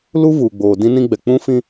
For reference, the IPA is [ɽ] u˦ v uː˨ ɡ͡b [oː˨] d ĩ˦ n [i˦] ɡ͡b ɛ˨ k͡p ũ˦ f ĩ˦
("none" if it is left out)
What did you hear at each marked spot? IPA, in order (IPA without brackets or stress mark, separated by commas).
l, oː˨, ĩ˦